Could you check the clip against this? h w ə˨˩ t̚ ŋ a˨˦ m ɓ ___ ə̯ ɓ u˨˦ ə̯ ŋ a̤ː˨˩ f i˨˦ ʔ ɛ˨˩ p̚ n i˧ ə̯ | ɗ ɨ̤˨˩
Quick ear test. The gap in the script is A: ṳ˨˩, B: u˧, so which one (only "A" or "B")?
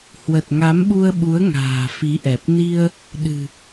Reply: B